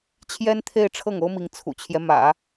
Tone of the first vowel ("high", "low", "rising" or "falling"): high